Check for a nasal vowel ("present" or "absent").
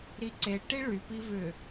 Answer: absent